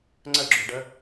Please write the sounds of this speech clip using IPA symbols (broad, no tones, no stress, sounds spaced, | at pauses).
ŋ͡ǀ ə ɡ͡ǁ u ɖ ə